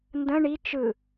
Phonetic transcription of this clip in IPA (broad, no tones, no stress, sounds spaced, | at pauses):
n d ə̃ ɳ i t͡ʃ ɯ